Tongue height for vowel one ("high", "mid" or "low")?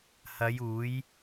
low